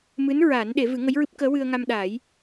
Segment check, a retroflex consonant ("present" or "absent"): absent